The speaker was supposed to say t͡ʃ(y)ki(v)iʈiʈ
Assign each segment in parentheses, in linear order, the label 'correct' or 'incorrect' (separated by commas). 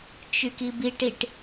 correct, incorrect